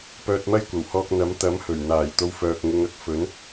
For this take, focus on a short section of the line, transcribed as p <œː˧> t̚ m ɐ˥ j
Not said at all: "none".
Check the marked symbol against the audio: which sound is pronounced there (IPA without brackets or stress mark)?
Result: œː˧